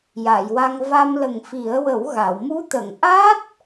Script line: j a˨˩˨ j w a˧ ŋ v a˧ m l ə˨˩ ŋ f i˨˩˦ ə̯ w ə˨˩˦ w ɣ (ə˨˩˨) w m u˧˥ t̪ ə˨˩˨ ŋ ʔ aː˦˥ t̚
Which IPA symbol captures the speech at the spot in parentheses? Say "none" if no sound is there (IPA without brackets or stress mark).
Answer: a˨˩˨